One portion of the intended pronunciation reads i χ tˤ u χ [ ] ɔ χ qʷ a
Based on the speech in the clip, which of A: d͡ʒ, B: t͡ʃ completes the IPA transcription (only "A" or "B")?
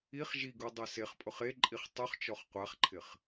B